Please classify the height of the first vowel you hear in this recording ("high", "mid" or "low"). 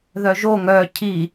mid